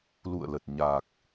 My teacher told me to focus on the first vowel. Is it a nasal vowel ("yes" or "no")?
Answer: no